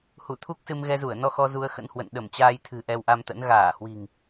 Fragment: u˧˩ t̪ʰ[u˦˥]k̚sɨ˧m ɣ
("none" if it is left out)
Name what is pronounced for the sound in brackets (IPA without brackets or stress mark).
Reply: u˦˥